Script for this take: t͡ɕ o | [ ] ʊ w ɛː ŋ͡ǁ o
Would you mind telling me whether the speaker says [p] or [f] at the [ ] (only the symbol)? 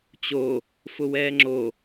f